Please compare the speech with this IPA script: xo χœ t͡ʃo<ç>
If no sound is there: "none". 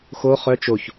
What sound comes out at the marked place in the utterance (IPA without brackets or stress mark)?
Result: ç